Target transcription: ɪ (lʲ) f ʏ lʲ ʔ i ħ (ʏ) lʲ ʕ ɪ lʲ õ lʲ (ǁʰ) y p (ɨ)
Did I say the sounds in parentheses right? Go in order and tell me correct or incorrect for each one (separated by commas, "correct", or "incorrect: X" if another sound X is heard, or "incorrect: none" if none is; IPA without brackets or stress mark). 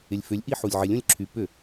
correct, incorrect: u, correct, incorrect: ʏ